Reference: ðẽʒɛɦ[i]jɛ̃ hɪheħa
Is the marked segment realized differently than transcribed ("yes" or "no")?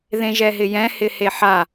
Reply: yes